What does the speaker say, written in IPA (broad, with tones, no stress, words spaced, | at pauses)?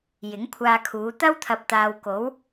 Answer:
jɪ˨˥ŋkʷʰaː˧kʰuː˨˧ t̪ɐ˥wt̪ʰɐ˨˥p̚t̪aː˨wko˨˥w